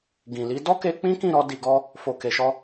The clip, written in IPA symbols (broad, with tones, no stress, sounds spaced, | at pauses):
ɡ ĩ˨ l i˨˦ d ɔ˦ k e˧ k͡p ĩ˦ k ĩ˦˨ ɾ ɔ˧ d i˧ ɡ ɔ˦ | f o˨ k e˨ ʃ ɔ˧